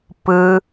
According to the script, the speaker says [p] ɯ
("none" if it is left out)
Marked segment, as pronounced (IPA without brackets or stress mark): p